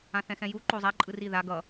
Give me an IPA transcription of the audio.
ã θ ɛ̃ x ɛ̃ j u ǃ o zˤ a ǃʼ ɯ r i ð a ɡ ʌ

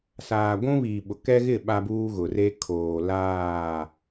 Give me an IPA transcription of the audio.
s aː˨ ɡʷ ũ˦ β iː˨ ɓ ʊ˨ k ɛ˦ ɣ ɪ˦˨ ɓ a˦ b uː˦ ɣ ʊ˨ r e˦ kʰ oː˨ l aː˦˨

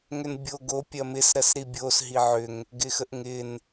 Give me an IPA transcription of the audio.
ŋ ʏ n bʲ o ɡ o pʲ ɐ m ɪ s ɾ ɐ s ɾ i bʲ o s ɦ i ʕ ʏ ŋ | ɡ ɪ x ə ʔ ŋ ɪ n

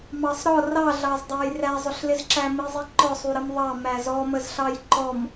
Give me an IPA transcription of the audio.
m ɑ sˤ ɾ ɔ r ɑ ɮ ɑ z dˤ æ j r æ zˤ ʊ ɬ l ɪ z ǁ æ m i zˤ i ǃ ɔ sˤ u ɾ ə m ðˤ ɑ m æ z ɔ m ə z ɬ ɑ j ǃ ɔ m

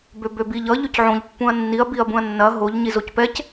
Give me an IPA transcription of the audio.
b ø b ø b i ʎ ʌ ʎ ø c ʕ õ ʎ pː ũ ɐ̯ nː i ɐ̯ b i ɐ̯ b ũ ɐ̯ nː ɐ ɦ o ʎ ɲ i z o c p ɛ c

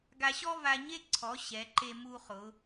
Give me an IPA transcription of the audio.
ɡ a˧ ɕ ɔ˥ v a˧ ɲ e˥ ǀʰ ɔ˩˧ ɕ ɛ˩˧ ǃ e˧ m u˧ χ ʊ˩˧

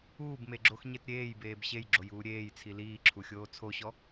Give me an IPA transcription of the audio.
uː b m e ɡ͡ǁ o x ɲ e t ɾʲ eː j b eː b ɕ e j ɡ͡ǁ o j uː ɾʲ eː j t͡sʰ i l iː ǁʰ u xʲ oː t͡sʰ o ɕ ɔ

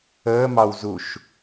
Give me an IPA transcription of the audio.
əː m ɑ w z u ʃ

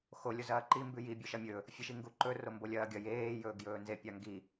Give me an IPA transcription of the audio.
x o lʲ o z ɐː ǃ i m b ʉ j i bʲ ɵ ʃ ɐ mʲ ɵ | fʲ e ʃ i ŋ ɡ u ǃ ɵ r o m b o lʲ ɐː ɡʲ ɐ j eː j ɵː ɡ j ɵː n z e pʲ a ŋ ɡ i

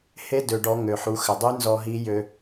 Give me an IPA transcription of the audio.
h e˧˥ d ø˩ ɖ ɔ˩˧ ŋ ø˩ ħ u˩˧ x ɘ˩ dˤ y˧˥ n z ɔ˧ ɦ i˧˥ j ø˧

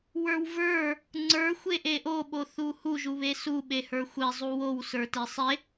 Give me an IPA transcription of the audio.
w ə˞ w v ə˞ | ŋ͡ǀ ə˞ xʷ e ʔ e ʔ o ɓ o θ u h u ʒ u β e s u ɓ e h ə˞ xʷ e zˤ u w o w s ə˞ t e sˤ e

